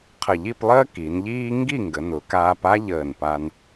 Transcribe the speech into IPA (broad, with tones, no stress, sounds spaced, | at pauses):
qʰ ə˧˩ ʎ i˥˧ p lˠ əː˥ k i˩˧ n ʎ iː˥ ŋ ɡ i˥˧ ŋ ɡ ə˩˧ n ʊ˩˧ k aː˧ p a˥ ʎ əː˧˩ n p a˧ n